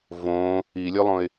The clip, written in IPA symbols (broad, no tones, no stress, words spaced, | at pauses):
võ | ilʲʉlˠõɪ̯